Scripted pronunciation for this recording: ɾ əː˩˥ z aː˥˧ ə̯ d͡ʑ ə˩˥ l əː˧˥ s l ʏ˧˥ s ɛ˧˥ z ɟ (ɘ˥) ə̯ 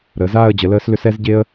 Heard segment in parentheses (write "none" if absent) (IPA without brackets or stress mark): e˥